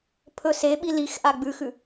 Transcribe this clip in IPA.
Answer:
pʰ ɵ s e ɓ i l i x ʔ a ɡ͡b ʉ x ʉ

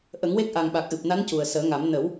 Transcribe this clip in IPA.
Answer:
ʔ ə˨˩˦ ŋ w e˦˥ k̚ ʔ a˨˩ ŋ ɓ a˨˩ k̚ ʔ ɨ˨˩ p̚ n a˧˥ n c u˨˩ ə̯ s əː˨˩˦ ŋ a˨˩˦ m n ə˨˩˦ w

